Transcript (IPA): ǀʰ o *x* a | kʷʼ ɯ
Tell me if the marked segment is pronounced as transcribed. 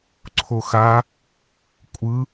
yes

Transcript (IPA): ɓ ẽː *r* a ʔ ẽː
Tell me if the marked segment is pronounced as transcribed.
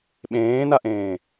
no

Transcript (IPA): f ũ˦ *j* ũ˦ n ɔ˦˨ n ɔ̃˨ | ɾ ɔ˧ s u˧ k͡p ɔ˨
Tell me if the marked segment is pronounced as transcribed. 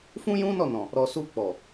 yes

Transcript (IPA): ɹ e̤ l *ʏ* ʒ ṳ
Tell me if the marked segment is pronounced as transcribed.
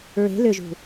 yes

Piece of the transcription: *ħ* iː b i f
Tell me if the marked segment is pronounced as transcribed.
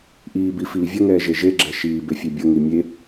no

